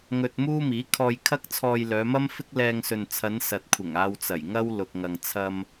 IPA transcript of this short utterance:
ŋ ɵ˧ t̚ m uː˥ m iː˨˥ kʰ ɔː˧ j kʰ ɐ˥ k̚ t͡sʰ ɔː˧ j l œː˨˧ m ɐ˥ m f ɪ˥ k̚ l ɛː˧ ŋ s ɵ˨ n t͡sʰ ɐ˨˧ n s ɐ˨ t̚ kʷʰ ɪ˨˩ ŋ aː˧ w t͡s ɐ˨˩ j ŋ ɐ˥ w l ʊ˨ k̚ ŋ ɐ˨ ŋ t͡sʰ ɐ˧ m

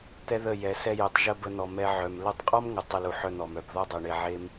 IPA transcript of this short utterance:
t̪ ɛ˦ ð ə˦˨ j ɛ˨ s ɛ˧ j e˨ tˤ ʒ ə˧ b ə˦ n̪ ɔ˧ m ɛ˦ ʕ œ˨ m l ə˧ tˤ qʼ ɔ˦ m ŋ ə˨ tˤ ə˧ l u˨ ħ œ˧ n̪ ɔ˨ m œ˨ b ð ɔ˦ dˤ ɛ˨ ɳ e˧ ʕ e˦ m

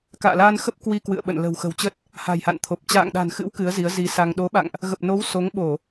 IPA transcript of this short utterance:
k a̰ː˧˨ l aː˧ n x ə˦˥ p̚ k w i˧ k w ɨ̰˧˨ ə̯ ɓ ə̰˧˨ n l ə̤˨˩ w x ə̤˨˩ w t͡ɕ ə˦˥ t̚ | h a̤˨˩ j h a̰˧˨ n t̪ʰ o˨˩ p̚ t͡ɕ a̰ː˧˨ ŋ ɗ a̤˨˩ n x ɨ̰˧˥ w k ɨ˨˦ ə̯ z i˨˦ ə̯ z i˨˦ s a˧ ŋ ɗ o˨˦ ɓ a̰˧˨ ŋ ʔ | ɣ ə˨˩ p̚ n o˨˦ w s o˨˦ ŋ ɓ o˧˩˨

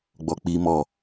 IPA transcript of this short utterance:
ɡ͡b ɔ k͡p i m ɔ

